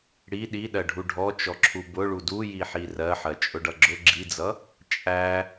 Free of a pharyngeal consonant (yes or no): no